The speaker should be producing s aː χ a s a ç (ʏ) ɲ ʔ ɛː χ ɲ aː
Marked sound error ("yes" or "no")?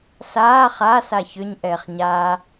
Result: no